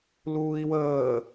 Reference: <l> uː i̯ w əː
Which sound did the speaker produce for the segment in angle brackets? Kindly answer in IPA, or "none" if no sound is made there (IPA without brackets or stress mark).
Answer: l